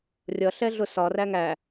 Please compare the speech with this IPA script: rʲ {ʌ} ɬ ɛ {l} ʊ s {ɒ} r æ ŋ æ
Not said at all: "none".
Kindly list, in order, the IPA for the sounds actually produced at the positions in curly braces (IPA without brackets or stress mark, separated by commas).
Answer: ʌ, ɮ, ɒ